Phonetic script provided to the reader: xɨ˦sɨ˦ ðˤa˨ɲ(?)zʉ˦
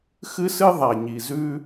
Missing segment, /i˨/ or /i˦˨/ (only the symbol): i˨